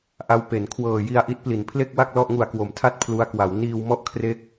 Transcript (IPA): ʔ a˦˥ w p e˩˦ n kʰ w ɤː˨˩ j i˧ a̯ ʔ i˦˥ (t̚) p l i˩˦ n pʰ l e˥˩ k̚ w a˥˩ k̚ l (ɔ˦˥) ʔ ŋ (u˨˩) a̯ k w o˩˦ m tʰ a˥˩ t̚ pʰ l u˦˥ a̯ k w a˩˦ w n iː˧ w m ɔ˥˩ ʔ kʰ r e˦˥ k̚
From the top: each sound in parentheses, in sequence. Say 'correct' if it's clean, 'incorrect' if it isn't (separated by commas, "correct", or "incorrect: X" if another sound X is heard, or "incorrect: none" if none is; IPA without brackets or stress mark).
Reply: correct, incorrect: ɔ˥˩, correct